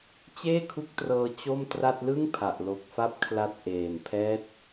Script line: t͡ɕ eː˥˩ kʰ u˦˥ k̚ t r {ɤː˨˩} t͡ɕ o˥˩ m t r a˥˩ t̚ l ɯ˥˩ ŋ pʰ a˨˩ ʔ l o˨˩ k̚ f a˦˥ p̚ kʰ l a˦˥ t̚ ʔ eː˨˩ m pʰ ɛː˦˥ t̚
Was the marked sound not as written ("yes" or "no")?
yes